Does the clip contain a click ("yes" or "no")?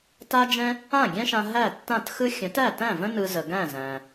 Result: no